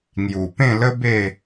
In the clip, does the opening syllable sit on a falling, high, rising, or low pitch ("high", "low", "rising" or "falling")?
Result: low